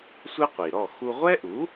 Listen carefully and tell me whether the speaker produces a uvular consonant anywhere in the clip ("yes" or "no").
yes